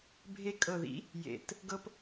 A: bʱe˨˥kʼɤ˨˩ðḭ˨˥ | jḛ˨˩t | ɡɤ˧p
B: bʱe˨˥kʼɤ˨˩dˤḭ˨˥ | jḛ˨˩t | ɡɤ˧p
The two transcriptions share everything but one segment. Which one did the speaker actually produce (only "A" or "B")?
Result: A